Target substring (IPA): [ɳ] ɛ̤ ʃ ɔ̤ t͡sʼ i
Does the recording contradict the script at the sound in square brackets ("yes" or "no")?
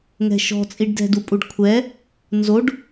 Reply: yes